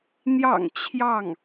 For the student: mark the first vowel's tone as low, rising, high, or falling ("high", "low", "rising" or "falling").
low